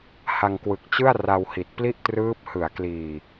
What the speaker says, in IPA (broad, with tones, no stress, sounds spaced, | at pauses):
h a˧ ŋ k w ɯ˨˩ k̚ t͡ɕ ɯ˥˩ a̯ r a˧ w h i˨˩ t̚ p l i˥˩ ʔ t r ɯː˦˥ p̚ h ɯ˩˦ a̯ k l iː˨˩